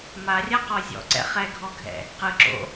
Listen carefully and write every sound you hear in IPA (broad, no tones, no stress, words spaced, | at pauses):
marʲaqɔ zʲɔ̰ǀɛ̰ χɛɡʱɔɡʱɛ̰ | qɯǁo̰